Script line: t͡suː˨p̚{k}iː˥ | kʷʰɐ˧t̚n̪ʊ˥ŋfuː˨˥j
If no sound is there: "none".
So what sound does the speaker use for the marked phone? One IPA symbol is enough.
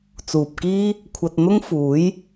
k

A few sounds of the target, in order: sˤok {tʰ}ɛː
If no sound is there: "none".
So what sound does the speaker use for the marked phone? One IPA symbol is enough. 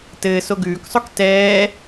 t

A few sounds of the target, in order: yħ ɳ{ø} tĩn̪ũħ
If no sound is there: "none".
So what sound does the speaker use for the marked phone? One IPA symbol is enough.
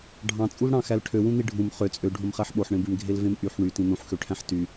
y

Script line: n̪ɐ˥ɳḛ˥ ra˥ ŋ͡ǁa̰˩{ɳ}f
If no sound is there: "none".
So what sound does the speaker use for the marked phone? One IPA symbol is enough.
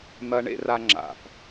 none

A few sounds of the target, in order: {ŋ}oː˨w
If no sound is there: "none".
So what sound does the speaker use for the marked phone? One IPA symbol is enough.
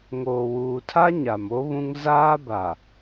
ŋ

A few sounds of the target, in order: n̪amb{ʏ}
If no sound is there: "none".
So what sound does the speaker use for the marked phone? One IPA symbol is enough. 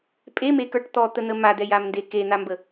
ə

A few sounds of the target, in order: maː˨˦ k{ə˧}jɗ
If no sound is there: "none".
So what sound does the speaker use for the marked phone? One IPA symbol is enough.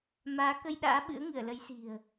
ə˧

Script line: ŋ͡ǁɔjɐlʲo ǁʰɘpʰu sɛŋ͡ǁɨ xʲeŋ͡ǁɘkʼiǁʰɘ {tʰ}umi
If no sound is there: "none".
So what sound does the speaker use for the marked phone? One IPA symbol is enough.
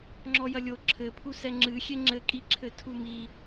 tʰ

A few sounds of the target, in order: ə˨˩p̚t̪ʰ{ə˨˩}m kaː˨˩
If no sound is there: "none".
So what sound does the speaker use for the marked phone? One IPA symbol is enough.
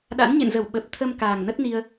ə˧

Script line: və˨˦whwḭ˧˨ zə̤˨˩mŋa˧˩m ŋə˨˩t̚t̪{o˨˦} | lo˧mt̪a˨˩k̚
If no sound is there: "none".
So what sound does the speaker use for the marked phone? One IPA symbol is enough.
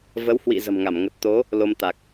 o˨˦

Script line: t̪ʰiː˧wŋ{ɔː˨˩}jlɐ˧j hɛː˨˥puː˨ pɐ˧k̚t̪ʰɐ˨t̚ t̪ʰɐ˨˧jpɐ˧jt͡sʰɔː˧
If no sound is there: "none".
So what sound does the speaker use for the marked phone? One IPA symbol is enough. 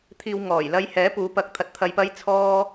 ɔː˨˩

